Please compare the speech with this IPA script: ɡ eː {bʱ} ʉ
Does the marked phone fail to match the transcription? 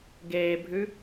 no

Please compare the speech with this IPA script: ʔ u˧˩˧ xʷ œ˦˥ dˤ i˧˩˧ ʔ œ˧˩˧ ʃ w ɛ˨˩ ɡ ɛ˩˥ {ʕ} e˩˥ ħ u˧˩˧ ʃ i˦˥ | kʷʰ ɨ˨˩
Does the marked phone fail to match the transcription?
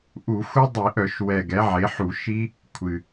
no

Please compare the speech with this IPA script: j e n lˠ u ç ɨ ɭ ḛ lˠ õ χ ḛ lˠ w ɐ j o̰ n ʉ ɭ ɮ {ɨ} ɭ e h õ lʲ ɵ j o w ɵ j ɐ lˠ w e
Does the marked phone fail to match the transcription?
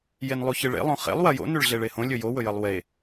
yes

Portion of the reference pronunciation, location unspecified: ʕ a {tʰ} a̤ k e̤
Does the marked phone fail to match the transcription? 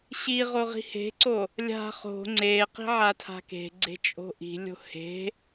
no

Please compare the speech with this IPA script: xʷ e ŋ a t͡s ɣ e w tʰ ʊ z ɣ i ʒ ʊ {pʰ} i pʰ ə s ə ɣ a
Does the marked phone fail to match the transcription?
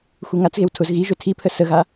yes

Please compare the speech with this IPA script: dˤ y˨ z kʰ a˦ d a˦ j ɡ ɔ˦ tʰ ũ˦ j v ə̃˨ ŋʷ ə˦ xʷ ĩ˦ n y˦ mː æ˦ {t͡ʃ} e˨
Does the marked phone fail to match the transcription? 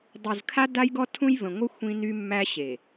yes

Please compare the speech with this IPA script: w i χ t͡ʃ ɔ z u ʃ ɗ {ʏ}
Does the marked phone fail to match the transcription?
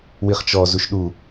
yes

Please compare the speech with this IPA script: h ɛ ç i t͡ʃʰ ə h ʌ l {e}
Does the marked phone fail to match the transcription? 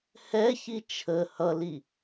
yes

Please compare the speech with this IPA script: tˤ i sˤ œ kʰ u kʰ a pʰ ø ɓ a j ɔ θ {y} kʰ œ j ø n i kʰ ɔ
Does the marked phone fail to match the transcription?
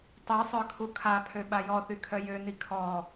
no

